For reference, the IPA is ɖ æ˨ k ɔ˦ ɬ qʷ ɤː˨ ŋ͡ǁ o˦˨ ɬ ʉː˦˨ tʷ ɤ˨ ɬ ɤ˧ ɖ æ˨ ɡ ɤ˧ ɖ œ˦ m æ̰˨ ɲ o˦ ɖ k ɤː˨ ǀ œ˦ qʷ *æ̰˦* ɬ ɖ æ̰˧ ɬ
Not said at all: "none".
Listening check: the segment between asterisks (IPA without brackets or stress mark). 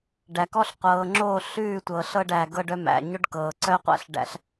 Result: æ̰˦